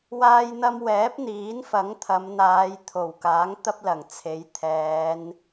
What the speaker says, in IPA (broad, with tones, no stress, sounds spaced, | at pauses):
w aː˧ j n̪ ɐ˧ m w ɛː˨˥ p̚ n̪ iː˨˥ n f ɐ˨˥ ŋ t̪ʰ ɐ˨˧ m n̪ aː˨˧ j t̪ʰ o˨˩ w k aː˨˥ ŋ t̪ ɐ˥ p̚ l ɐ˨˩ ŋ t͡sʰ e˨˥ j t̪ʰ ɛː˨˧ n